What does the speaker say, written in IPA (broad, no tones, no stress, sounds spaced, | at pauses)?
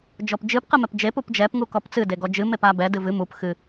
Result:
d͡ʒ ɔ p d͡ʒ ɨ p q ɨ m ɛ p d͡ʒ e p u p d͡ʒ ɛ p ŋ u k ɔ p t͡s ɨ d e ɡ ɔ d͡ʒ ɨ m e p a b ɛ d ɨ v ɨ m u p x ɨ